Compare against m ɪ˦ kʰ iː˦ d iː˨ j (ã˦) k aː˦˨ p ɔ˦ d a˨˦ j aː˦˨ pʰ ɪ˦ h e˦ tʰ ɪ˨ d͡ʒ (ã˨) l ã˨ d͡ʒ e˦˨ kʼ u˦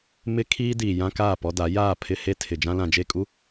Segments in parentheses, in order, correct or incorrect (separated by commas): correct, incorrect